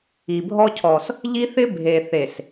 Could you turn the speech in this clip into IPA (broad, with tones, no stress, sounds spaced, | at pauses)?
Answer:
i˨ bʱ ɔ˦ cʰ ɔ˨ s | ʎ i˦ θ ɪ˦ bʱ e˨ θ e˨ s